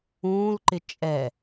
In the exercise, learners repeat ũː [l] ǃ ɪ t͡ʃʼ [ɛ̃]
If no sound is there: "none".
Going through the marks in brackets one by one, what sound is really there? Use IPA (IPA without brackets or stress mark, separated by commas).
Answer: l, ɛ